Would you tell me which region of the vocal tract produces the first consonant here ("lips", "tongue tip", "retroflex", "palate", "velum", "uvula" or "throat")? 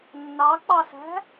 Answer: tongue tip